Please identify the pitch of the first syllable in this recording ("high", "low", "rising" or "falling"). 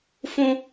high